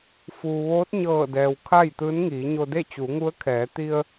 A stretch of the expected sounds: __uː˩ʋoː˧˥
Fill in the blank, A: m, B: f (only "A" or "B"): B